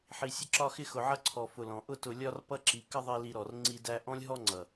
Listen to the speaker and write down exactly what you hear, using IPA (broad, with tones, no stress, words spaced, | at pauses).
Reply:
ħi˨sʲə˧ǁɒ˧xɪ˧ xʊ˨ ʕʌ˧ǀʰɔ˨fʊ˨ lɔ̃˨ ʔʊ˧tʊ˨lʲɒ˧r pʌ˦ǁi˨˦ kə˦ðˤi˧li˧ɾɔ˨r ŋ͡ǀi˧ dæ˧ʔɔ̃˦lʲ ɦɔ˦ŋ͡ǀʌ˨